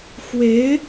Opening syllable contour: rising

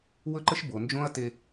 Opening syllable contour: high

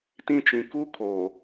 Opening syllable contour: high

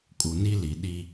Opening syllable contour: low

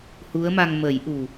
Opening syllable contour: rising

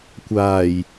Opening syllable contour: low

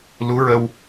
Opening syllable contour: rising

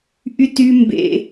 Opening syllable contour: high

